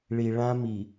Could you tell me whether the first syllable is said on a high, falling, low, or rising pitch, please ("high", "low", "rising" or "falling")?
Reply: low